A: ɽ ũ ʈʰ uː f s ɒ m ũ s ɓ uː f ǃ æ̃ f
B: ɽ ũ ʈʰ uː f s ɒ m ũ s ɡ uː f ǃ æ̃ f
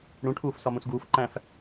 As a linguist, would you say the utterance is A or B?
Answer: B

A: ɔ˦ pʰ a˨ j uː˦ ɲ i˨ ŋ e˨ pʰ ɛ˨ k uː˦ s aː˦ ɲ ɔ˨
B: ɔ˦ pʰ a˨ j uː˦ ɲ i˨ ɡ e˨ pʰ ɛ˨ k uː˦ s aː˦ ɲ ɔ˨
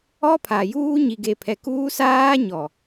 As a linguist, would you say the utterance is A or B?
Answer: B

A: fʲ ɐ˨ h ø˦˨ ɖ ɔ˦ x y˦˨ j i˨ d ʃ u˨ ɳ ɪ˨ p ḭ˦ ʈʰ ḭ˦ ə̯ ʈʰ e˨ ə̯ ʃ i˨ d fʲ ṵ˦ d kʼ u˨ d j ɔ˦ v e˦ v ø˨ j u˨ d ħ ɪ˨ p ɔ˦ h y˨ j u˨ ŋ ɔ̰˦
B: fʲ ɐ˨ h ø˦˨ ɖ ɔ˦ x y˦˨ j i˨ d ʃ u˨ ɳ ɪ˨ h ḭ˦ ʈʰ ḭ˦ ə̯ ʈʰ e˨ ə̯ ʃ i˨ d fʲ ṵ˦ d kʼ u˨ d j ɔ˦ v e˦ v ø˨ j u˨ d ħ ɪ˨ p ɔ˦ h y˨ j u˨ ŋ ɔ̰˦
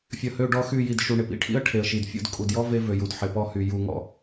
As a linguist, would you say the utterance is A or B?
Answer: A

